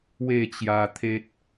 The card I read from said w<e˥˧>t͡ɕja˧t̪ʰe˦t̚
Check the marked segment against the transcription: correct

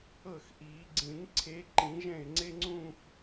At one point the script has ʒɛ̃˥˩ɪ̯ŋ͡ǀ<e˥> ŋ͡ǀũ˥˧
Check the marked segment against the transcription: correct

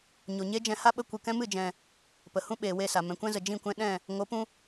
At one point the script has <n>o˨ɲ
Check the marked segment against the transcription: incorrect: ɲ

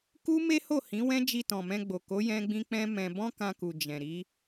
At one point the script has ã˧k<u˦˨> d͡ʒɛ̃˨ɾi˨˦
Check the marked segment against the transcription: incorrect: u˨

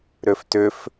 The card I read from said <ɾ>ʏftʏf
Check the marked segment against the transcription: correct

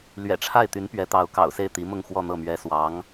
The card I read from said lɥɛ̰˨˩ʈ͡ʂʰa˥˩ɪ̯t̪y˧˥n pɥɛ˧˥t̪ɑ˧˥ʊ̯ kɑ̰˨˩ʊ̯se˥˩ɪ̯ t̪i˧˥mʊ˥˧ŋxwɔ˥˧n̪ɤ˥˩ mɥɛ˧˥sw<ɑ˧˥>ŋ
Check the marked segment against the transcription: correct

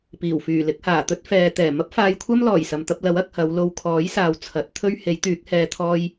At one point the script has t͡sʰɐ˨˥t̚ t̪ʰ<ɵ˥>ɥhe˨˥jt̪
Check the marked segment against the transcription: correct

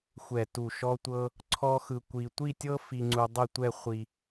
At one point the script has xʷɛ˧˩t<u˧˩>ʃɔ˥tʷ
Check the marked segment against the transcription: correct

